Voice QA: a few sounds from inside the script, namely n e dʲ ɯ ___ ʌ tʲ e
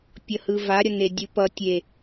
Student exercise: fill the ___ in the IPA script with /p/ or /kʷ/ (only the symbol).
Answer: p